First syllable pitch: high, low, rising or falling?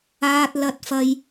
high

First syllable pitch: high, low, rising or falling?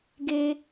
high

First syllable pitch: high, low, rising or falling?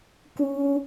high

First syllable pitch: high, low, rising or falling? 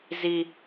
high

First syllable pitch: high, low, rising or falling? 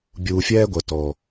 low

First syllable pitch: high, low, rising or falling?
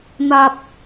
low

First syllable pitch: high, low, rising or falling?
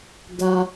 low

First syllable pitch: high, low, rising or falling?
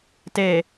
low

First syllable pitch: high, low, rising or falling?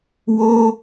high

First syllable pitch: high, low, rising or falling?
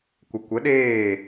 low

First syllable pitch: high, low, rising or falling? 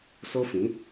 high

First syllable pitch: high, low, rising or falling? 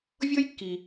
high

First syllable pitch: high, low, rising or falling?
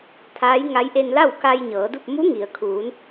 rising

